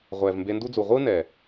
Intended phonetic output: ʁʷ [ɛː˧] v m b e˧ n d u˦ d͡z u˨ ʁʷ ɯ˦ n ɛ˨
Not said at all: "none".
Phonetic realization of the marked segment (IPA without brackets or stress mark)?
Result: ɛː˨